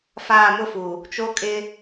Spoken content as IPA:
faː˦˨mʊ˦fu˨ | t͡ʃo˦kʼɪ˦

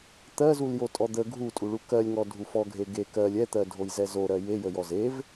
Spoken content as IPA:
t̪ɜzul jotʼɔd̪ə ɡʱutʼuɭu kɜlʲŋɔ dʱufɔɡʱe ɡe kɜlʲ ɛt̪ɜ dʱojzɛzoɾɜ jejə jɔzev

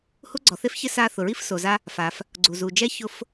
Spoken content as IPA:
hu˥ɡ͡ǀɔ˩θe˥f çɪ˥sa˦ θʊ˩ɹi˥fso˩za˦ | fa˩f | ɡ͡ǀu˩zu˩d͡ʒɛ˦ çʊ˦f

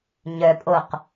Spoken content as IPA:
ɲœpʼoq

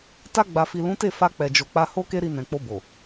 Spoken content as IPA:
ta˧ɡ͡ba˨fi˨ lũ˨˦te˦˨ fa˧k͡pɛ˨d͡ʒo˨k͡pa˧ ho˦ ke˦ɾi˧ nɛ̃˨k͡po˧ bo˨

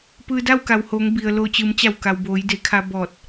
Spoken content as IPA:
pɯː˧da˥˨wka˩whoː˩˧ŋ bi˩ə̯ lo˧˩t͡ɕɯː˩˧mt͡ɕa˧˩w ka˩wboː˩˧j de˩˧kʰa˧ bɔː˧˩t̚

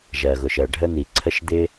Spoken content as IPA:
ʒɜ˩ɣʊ˩ʃɜ˩ ɖʱə˥n̪i˩ǀʰə˥ʃ d̪ɪ˥

